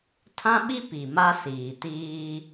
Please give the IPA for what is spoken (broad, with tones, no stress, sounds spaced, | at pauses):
tʰ ã˦ ɓ i˦ p i˨ m a˦ s iː˨ t iː˦